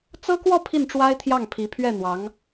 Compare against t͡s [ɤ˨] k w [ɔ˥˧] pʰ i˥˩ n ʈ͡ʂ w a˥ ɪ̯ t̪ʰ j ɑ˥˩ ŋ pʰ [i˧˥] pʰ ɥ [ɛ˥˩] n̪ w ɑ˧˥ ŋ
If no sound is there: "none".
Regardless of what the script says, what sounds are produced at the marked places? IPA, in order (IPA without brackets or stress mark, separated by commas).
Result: ɤ˥, ɔ˥˧, i˧˥, ɛ˥˩